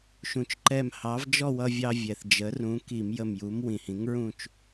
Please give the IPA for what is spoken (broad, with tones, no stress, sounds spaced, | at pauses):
ʃ ũ˩ t͡ʃ ǃ ɛ˧˩ m h ɑ˩˥ v d͡ʒ ɔ˥˧ w ʌ˧ vʲ ɑ˧ vʲ ɛ˩ θ d͡ʒ ə˩˥ r ũ˩˥ k i˧˩˧ m j ə˧˩ m j u˩˥ m w ĩ˩ h ĩ˩˥ ŋ ɹ ũ˥˧ t͡ʃ